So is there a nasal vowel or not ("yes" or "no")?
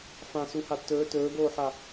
yes